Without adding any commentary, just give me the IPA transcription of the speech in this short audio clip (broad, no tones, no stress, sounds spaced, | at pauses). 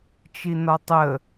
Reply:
t͡ʃ i n ɒ tˤ ə